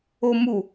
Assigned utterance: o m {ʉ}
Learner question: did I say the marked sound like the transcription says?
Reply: no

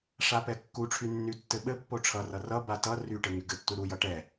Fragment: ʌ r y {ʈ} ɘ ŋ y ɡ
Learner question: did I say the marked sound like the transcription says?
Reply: yes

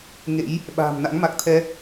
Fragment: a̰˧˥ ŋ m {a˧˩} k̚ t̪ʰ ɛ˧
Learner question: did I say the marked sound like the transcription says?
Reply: no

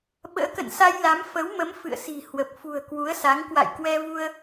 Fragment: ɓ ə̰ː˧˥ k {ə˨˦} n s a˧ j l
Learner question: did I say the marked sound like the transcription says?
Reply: no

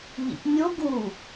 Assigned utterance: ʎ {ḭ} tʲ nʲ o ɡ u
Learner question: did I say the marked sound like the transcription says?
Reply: yes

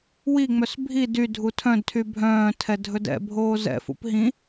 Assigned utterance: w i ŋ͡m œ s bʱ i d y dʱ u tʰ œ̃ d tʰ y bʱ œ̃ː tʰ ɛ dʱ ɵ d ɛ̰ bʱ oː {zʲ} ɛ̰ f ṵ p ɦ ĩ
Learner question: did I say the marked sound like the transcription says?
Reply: no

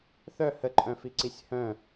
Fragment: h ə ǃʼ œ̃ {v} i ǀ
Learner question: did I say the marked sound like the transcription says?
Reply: no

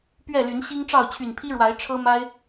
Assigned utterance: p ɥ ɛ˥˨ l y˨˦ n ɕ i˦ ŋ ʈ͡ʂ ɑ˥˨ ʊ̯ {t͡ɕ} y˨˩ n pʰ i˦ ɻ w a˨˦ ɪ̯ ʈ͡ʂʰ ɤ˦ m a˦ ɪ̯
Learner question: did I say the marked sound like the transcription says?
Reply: no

